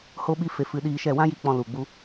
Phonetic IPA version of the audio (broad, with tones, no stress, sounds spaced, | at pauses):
h o˦ ɓ i˦ f e˧ f ɨ˧ ɗ iː˧ ʃ ɛ˦˨ w ã˦ j i˧ k͡p ɔ̃˧ l u˨ ɡ͡b u˧